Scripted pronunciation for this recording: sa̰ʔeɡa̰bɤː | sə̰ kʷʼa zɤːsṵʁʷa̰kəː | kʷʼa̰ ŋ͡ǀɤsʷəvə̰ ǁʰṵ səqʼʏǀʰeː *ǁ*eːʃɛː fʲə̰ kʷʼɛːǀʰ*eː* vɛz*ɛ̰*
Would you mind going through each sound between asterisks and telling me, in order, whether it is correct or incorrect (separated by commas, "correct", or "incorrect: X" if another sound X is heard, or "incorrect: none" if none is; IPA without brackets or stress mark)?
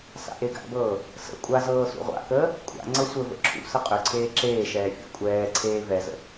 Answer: correct, correct, incorrect: ə̰